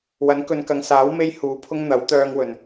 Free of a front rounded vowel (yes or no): no